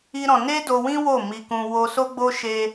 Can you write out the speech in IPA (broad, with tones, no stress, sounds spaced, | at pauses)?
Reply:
i˦ ɾ ɔ̃˧ n e˦ d o˧ w ĩ˦ w o˦˨ m i˧ k ũ˧ w o˧ s o˦ ɡ͡b o˦ ʃ e˧